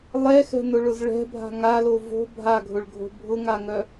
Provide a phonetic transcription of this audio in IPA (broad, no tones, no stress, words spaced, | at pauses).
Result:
lˠɛxɛ̤nʊɭʊz ɭɛ̤bʱa̤ ŋalo vo̤ bʱaɡʱʊɭɡʱo̤ bʱʊŋaŋœ